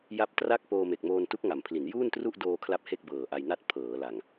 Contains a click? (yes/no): no